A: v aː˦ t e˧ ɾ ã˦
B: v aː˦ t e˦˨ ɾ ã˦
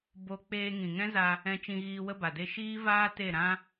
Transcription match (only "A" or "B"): B